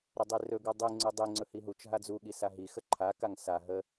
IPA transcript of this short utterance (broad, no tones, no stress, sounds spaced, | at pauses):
ɾ ə dˤ i r ɵ ɡ u dˤ i ŋ͡ǀ ɵ dˤ i ŋ͡ǀ ɵ h i ɦ u t͡ʃ ɦ a d͡z u ɠ i s a ɦ i x ə ǃʰ a k a ŋ s a ɦ ə